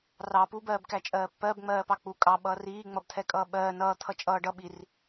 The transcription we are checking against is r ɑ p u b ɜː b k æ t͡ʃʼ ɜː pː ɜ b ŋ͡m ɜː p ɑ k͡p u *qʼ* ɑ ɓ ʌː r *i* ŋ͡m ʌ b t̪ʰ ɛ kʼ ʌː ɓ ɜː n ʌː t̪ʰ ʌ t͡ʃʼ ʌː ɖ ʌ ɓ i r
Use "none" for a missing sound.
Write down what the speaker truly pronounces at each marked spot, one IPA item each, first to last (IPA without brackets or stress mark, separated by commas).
kʼ, iː